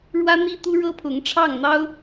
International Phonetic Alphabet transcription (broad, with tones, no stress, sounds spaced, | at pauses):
ɻ w ä˥ n̪ i˥ t̪ u˥ ɻ ɤ˥ pʰ ʊ˧˥ ŋ ʈ͡ʂʰ ɑ˥˩ ŋ n̪ ɑ˥ ʊ̯